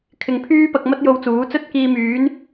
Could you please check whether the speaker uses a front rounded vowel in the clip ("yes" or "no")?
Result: yes